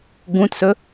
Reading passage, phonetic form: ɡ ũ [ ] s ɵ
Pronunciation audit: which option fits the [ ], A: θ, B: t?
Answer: B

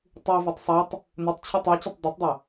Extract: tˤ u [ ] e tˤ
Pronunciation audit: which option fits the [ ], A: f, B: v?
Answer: B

